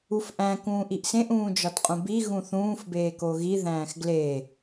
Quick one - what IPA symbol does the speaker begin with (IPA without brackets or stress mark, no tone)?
u